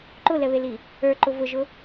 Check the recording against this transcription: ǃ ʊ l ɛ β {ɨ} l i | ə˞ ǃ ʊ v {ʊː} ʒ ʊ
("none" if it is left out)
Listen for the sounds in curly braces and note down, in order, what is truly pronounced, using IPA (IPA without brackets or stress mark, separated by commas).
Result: e, ʊ